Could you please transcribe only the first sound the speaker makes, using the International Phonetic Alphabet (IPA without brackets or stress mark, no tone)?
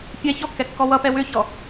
pʲ